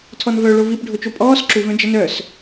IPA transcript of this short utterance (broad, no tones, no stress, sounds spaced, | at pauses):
tʰ ɔ n v œ ɭ o v i p ɖʱ o t͡ʃ o pʼ ɔː s ǁ u v œ̃ d͡ʒ ə n œ s